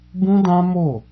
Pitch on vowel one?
high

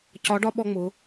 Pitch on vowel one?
rising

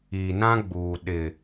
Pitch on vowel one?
low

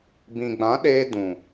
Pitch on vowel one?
low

